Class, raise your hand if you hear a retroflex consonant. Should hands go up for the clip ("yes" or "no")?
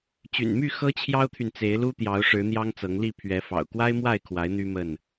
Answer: yes